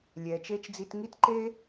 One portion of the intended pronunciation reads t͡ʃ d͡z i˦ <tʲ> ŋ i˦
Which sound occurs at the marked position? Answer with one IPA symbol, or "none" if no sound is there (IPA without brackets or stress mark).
t